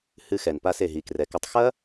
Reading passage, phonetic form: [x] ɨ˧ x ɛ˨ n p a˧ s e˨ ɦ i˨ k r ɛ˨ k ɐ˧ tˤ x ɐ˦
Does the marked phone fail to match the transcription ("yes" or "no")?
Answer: yes